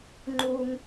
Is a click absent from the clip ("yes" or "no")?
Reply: no